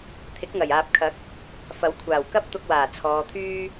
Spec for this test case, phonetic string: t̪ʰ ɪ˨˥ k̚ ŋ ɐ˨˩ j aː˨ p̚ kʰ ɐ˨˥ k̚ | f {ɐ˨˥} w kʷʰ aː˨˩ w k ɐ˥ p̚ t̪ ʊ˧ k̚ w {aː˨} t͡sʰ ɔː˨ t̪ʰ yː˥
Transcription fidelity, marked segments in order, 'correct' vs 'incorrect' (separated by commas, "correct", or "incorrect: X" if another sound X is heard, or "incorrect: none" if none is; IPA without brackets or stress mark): correct, incorrect: aː˨˩